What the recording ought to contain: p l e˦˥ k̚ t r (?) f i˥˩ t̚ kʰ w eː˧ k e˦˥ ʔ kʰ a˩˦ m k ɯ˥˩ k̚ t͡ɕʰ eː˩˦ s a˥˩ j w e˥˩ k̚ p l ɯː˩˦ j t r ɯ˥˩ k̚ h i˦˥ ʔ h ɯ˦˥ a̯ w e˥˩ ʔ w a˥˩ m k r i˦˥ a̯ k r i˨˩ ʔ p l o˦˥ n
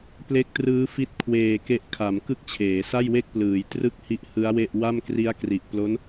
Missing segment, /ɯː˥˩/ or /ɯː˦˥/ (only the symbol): ɯː˦˥